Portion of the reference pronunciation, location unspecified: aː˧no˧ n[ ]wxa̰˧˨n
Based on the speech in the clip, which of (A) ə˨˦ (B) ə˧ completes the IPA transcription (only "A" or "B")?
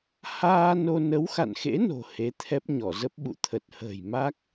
A